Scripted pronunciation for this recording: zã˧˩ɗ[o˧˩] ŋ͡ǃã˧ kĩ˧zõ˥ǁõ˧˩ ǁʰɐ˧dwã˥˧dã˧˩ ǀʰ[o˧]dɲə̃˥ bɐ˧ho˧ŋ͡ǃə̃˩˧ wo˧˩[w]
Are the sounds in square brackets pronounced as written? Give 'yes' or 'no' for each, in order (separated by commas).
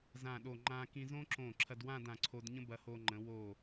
yes, yes, no